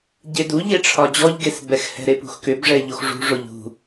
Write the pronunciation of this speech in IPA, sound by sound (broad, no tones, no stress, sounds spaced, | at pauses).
ɟ e d u ʎ e ʈ͡ʂʰ ɒ d͡ʑ ɔ ʎ ɡ e s b ɛ x h ɛ̤ ɾ e p ṳ x k ʏ b ʐ ɛ ʎ o x ʐ ṳ ʐ o ʎ ṳ